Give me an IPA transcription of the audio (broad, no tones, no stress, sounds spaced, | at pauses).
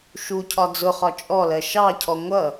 ʃ u cʰ ɒ d͡z ʊ χ ɒ t͡ʃʼ ɔ l ɜ ʃ ɑ cʰ ɔ ŋʷ ʌ